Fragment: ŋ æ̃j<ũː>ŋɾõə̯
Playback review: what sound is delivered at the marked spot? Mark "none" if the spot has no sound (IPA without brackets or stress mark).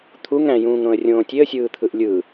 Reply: ũː